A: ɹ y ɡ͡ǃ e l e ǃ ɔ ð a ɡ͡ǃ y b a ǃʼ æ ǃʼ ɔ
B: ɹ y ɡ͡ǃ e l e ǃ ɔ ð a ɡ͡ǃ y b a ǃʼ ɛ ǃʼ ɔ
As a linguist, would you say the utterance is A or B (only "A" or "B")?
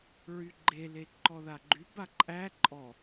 A